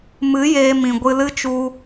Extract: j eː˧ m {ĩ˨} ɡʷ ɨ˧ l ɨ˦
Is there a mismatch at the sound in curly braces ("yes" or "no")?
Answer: no